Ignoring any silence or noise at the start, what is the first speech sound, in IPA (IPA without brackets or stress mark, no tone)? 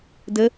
d